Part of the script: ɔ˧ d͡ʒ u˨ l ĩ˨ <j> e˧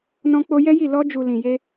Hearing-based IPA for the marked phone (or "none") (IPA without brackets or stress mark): j